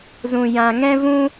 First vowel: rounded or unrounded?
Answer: rounded